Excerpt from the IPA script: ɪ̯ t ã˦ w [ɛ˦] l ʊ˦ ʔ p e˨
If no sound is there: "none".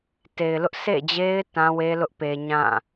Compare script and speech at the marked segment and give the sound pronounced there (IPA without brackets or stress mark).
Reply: e˦